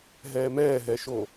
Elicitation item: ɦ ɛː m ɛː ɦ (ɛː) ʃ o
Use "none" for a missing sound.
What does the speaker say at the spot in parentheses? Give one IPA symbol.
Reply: ɛ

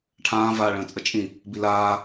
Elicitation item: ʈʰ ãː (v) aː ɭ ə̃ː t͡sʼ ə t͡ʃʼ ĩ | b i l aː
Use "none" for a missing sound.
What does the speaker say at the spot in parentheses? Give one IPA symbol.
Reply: v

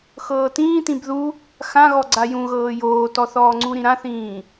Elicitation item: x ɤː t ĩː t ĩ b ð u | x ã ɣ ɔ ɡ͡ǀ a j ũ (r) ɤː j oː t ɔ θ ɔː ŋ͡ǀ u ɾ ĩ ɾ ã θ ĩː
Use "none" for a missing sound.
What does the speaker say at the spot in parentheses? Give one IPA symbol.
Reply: ɣ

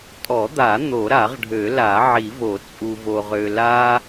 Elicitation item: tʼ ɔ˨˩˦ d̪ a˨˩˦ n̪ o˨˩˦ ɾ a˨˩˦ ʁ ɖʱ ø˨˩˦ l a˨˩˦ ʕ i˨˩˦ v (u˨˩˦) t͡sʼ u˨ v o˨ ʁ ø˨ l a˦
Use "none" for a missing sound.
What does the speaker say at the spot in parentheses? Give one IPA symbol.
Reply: o˨˩˦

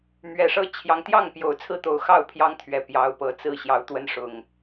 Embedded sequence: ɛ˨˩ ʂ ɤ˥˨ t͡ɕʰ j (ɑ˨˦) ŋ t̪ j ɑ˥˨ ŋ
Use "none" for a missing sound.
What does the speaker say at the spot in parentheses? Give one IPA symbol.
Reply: ɑ˨˦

